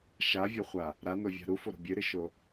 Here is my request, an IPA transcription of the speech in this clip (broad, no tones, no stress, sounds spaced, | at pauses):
ʃ a vʲ o χʷ a | ɾ a n o vʲ a̤ ɾ u f o ɾ o̤ bʲ ɨ ɾ ɨ ʃ o